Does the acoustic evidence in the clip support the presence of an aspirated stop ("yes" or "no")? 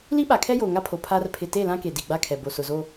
yes